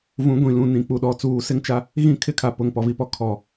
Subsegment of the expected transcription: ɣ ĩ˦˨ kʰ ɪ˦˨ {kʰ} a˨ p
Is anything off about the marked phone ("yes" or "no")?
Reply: no